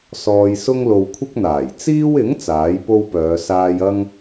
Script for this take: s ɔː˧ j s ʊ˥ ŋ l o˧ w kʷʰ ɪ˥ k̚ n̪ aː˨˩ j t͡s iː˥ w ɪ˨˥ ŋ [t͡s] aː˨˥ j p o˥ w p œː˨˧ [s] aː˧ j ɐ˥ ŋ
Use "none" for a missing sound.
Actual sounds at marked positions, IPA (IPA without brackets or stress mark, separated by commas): t͡s, s